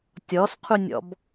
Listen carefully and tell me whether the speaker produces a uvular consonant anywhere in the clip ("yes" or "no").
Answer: yes